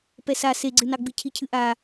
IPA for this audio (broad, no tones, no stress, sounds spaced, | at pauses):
p ɛ s a s e ɡ͡ǀ ɨ n ɑ ɡ͡b ɨ cʰ i cʰ ɨ ʔ a